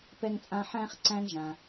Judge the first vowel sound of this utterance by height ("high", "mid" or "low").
mid